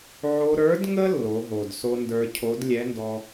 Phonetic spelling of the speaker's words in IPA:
ʕ o˧ ɾ ə˞˧˥ d ŋ ə˥ lː o˩˧ ɦ o˩ d s o˧ n d ə˞˧ cʰ o˧˥ d lʲ ɛ˧˥ n d ɔ˧

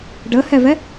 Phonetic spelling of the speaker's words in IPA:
ɖ ɤ h ɜ v ɜ

